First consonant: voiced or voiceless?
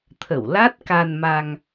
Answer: voiceless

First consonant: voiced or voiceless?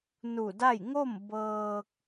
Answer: voiced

